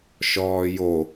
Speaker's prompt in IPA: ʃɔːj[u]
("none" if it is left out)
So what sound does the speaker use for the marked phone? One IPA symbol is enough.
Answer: o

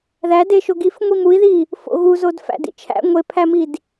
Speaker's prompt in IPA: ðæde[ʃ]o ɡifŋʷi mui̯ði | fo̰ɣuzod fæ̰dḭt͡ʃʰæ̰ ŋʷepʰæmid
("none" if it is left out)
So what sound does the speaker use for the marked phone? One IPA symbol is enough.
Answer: ʃ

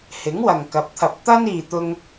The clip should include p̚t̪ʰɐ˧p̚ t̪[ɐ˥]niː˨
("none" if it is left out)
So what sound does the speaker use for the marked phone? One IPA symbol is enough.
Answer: ɐ˥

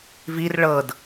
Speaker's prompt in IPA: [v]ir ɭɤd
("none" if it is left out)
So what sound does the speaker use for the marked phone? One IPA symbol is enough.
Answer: v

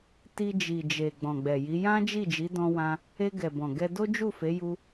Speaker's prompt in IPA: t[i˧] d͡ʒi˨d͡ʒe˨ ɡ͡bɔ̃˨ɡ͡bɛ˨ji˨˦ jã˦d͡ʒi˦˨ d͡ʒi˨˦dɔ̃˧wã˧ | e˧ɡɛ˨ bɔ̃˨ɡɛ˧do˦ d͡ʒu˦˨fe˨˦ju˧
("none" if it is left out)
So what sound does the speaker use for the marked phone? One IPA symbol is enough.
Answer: i˧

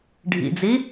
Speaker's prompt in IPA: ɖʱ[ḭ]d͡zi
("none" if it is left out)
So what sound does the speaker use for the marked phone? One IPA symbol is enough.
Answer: ḭ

